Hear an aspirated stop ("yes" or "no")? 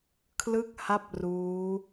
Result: yes